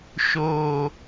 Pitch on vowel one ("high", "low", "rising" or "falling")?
low